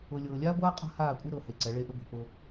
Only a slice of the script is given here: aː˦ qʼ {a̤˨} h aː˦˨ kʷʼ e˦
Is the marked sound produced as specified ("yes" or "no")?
no